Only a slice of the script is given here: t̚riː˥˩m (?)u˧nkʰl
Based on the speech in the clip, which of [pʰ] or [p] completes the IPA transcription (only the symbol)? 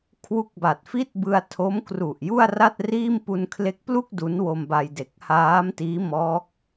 p